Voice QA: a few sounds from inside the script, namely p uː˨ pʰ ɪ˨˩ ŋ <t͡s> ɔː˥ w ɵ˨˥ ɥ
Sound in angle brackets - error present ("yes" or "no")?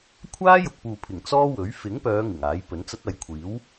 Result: no